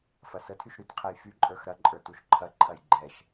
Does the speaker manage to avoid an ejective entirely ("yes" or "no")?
no